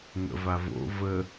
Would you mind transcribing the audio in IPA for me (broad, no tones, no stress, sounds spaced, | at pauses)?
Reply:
ŋ ə̰ v a v o̰ v ə